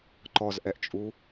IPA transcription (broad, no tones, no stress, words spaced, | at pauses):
ǃɔzʔɛʔt͡ʃʼu